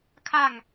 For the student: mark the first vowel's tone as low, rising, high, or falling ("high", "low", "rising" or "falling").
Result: falling